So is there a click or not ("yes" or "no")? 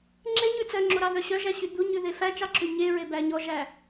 yes